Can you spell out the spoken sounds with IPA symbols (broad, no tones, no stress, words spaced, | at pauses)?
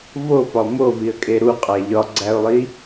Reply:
vopɒ moviə̯kʼe ɾuqʼæ ʎɒɡ͡ǀæʊ̯lˠi